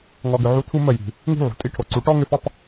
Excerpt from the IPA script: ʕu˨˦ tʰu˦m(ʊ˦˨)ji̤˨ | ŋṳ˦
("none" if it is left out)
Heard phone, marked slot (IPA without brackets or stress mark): ə˦˨